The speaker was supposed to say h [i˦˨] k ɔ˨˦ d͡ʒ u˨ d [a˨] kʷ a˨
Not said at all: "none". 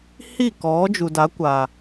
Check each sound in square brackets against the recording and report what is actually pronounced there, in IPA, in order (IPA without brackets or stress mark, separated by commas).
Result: i˦˨, a˨˦